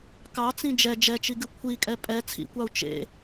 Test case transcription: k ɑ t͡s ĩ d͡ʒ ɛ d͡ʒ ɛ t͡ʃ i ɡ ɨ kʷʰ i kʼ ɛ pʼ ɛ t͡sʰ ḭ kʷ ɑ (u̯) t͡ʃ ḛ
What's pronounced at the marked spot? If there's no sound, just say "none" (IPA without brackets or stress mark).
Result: u̯